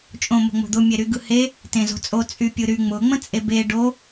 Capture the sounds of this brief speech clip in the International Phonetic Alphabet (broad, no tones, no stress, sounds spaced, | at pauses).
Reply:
t͡ʃʼ õ m o̤ ŋ͡m o̤ d̪ ʊ mʲ e ɾ y ɡ ɯ h e | t ẽ z o̤ t͡sʼ o t͡sʼ y pʲ ɯ ɾ y ŋ͡m ʊ ŋ͡m ə̃ t͡sʼ e b e ɖ o